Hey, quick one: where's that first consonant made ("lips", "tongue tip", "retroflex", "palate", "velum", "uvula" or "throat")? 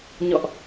palate